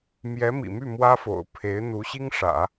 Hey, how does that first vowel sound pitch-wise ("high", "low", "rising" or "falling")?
rising